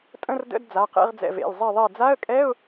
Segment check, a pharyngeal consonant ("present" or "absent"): absent